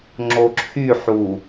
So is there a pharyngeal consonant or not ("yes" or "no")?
yes